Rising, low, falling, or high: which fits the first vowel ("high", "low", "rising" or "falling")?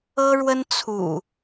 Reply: high